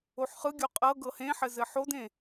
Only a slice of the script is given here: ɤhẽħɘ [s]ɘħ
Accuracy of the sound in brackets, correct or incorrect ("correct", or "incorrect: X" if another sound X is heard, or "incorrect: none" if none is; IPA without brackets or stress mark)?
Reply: incorrect: z